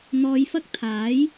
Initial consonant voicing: voiced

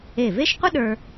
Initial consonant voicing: voiced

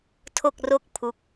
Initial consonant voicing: voiceless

